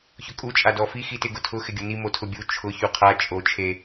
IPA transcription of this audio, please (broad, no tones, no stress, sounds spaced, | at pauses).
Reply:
ç ʊ kʼ u t͡ʃʼ a d ɔ f i x i t ɪ ɡ ʊ tʰ ʊ x ɪ ɡʲ ʊ n i m o tʰ ʊ bʲ u t͡ʃʰ ʊ ç u qʰ a t͡ʃʼ o t͡ʃʰ e